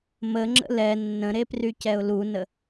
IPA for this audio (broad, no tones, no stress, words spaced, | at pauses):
məŋ͡ǁə̰ lɛ nːə̃ɾeprycɛʊ̯ lunə